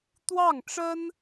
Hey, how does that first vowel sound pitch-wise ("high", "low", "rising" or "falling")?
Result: falling